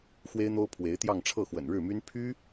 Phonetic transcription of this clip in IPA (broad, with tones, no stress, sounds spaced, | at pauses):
x w e˥ ɪ̯ n̪ o˥ ʊ̯ pʰ w e˧˥ ɪ̯ t̪ j ɑ˥˧ ŋ ʈ͡ʂʰ ɤ˥˩ x w ə̰˨˩ n ɻ ɻ̩˥˩ m y˥ n pʰ y˥